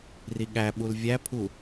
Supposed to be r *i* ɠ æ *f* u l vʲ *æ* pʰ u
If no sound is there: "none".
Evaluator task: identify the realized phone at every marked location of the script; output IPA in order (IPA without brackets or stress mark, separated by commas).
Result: i, ɓ, æ